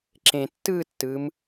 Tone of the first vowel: low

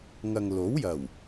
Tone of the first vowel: low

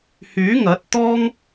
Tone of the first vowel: rising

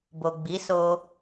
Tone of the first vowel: low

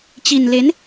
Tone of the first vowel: low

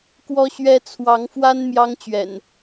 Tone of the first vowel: high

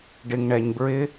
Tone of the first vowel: low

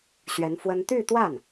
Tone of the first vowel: rising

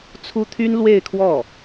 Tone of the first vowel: high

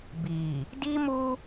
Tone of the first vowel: low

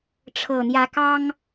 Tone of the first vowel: low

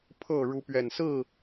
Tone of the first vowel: falling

